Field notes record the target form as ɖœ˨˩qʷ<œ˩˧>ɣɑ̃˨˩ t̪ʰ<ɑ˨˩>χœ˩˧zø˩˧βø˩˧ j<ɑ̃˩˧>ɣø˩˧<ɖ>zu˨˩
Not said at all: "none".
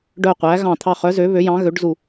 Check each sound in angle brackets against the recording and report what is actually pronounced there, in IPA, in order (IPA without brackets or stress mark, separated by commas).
æ˩˧, ɑ˨˩, ɑ̃˩˧, ɖ